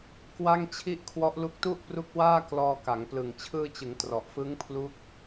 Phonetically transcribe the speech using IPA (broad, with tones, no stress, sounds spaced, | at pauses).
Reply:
k w a˥˩ ŋ t͡ɕʰ i˥˩ ʔ kʰ w ɔ˦˥ ʔ l u˦˥ k̚ t u˥˩ ʔ p r u˦˥ k̚ w aː˥˩ k l ɔː˧ k a˩˦ ŋ p l ɯ˨˩ ŋ t͡ɕʰ ɯː˧ t͡ɕ ɯ˩˦ ŋ t r ɔ˨˩ ʔ f ɯ˦˥ ŋ pʰ l u˦˥ k̚